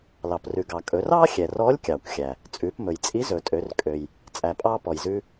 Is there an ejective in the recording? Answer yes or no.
yes